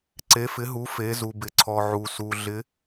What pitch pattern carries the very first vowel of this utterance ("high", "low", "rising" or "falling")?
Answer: rising